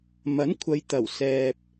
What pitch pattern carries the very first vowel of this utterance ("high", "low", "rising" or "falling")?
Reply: rising